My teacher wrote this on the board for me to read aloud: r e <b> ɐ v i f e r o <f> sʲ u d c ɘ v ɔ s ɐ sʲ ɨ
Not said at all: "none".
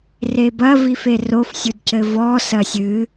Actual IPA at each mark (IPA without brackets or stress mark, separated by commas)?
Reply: b, f